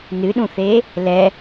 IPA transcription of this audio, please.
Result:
n ɨ ɗ ũ θ e | l ɛ

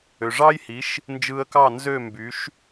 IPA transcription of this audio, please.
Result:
ø˩ ʐ ɑ˥ j h i˩˥ ʃ | n d͡ʒ ɯ˧ ə̯ k ɑ˥˩ n z ø˥˩ m b y˩˥ ʃ

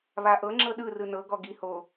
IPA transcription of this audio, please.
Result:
β a ʔ ɤ ŋ͡ǁ ɤ ɗ ɯ r ɯ n ɤ ɡ ɔ ɡ i h o

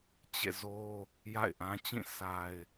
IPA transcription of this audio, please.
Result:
t͡ɕ ḛ˦˨ z o˦ | j a̰˦˨ ɪ̯ ʔ ã˦ t͡ɕ ĩ˦˨ s a˨ ɪ̯

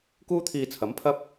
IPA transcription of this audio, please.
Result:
k uː˥ t̪ʰ iː˧ t͡sʰ ɐ˨˥ m pʰ ɐ˥ p̚

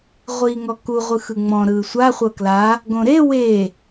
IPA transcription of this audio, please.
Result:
ʁʷ iː ŋ ɔ k u ʁʷ ɯ x ɯ ŋ͡m ɔ̃ ɾ ɯː sʷ a χʷ ɤ k l a | ɡ õ ɾ e w e

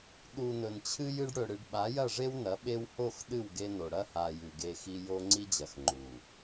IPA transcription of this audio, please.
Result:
ɗ u˨ n ɵ˨ n t͡ɕʰ ɨ˦ j ɨ˦ ɖ ɽ ɵ˨ ɽ ɨ˨ ɖ ɓ a˨˦ j ɐ˦˨ ʐ e˦ w n ɐ˨˦ ɓ e˦ w h o˦˨ x ɗ ɨ˦˨ w ɡ e˦ n o˨ ɽ ɐ˦ h a˨ j ʉ˨ ɡ e˦ x i˦ j o˦ ŋ͡ǀ i˦ d͡ʑ ɐ˨ x ŋ͡ǃ u˨

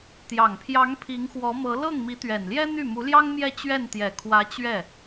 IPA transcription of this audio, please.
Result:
t̪ j ɑ˨˩ ŋ pʰ j ɑ˧˥ ŋ pʰ i˧˥ ŋ x w ɔ˧˥ m ɤ˧˥ l ɤ˥˩ ŋ m i˧˥ t̪ ɥ ɛ˨˩ n l j ɛ˥ n̪ y˥˩ m u˧˥ l j ɑ˥ ŋ m j ɛ˥˧ t͡ɕ ɥ ɛ˥˩ n t̪ j ɛ˨˩ kʰ w ä˧˥ t͡ɕ ɥ ɛ˥˩

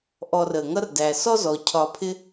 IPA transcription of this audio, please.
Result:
ʔ ɔ˨ r ə˩ ŋ ʌ˦ r d æ˩ s ɔ˥ z ɔ˩ cʰ ɒ˨ pʰ ɪ˥

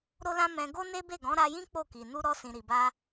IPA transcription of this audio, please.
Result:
ɾ o˦ l ã˦ m ɛ̃˧ ɡ o˦ n e˦ b e˦˨ ɡ ɔ̃˨˦ ɾ a˧ j ĩ˦ k͡p o˦˨ k i˨ n u˧ ɾ ɔ˧ s ĩ˨ ɾ i˨ b a˧

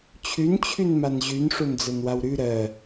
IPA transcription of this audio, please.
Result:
t͡ɕʰ ʉ n t͡ɕʰ ʉ n m a n ʑ ʉ n ʂ o n d͡z ɜ n w a w ɾ ʉ ɾ ɜ

